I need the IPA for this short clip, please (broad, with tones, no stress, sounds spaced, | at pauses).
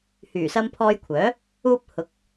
h yː˨˩ s ɐ˧ m pʰ ɔː˧ j kʷʰ œː˨˥ | uː˧ p̚ h ʊ˨˥ k̚